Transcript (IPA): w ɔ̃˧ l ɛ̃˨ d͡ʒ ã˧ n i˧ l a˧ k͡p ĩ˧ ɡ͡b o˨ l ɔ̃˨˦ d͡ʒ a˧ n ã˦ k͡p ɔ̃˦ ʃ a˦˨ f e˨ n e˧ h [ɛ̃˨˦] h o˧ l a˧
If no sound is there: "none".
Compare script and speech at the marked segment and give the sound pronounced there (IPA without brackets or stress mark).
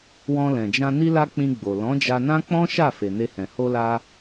ɛ̃˨